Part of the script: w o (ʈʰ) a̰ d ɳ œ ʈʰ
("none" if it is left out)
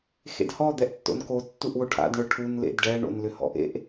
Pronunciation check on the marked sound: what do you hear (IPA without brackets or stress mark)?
ʈʰ